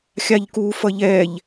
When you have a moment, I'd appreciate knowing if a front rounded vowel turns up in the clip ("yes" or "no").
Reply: no